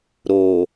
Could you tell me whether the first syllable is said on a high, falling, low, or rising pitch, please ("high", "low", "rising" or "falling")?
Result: low